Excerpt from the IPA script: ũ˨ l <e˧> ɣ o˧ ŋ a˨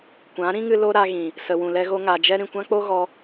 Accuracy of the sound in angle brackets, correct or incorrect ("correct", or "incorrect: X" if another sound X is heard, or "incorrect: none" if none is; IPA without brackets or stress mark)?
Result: incorrect: ɛ˧